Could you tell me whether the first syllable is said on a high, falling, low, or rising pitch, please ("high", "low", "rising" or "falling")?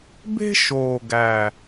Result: high